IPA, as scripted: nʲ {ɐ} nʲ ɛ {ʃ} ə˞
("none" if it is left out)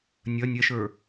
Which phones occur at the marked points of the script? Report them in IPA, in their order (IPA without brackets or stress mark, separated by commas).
ɐ, ʃ